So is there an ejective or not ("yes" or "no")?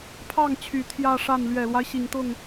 no